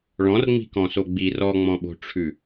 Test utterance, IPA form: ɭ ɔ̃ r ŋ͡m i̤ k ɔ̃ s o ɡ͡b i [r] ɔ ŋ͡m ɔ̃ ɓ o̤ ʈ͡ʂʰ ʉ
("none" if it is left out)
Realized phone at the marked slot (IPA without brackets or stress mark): r